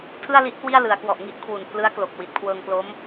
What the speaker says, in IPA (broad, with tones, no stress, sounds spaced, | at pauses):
tʰ ɯ˥˩ a̯ l i˦˥ ʔ k w i˥˩ a̯ l ɯ˩˦ a̯ k w ɔ˨˩ ʔ ŋ i˥˩ ʔ kʰ w u˨˩ n pʰ l ɯ˦˥ a̯ k l o˨˩ k̚ w i˨˩ t̚ kʰ w ɤː˧ ŋ k l o˦˥ m